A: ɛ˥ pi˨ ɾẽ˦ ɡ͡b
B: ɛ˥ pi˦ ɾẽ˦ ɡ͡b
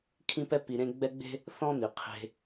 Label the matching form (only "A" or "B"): A